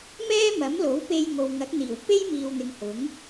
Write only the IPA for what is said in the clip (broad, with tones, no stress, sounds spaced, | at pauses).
m ɛː˥ m ɐ˨˥ m l o˨˥ w p e˧ j ŋ o˨ w ŋ ɐ˨˥ k̚ n̪ iː˨˩ w p e˥ j m iː˨ w n̪ ɪ˨ ŋ h ʊ˨˥ ŋ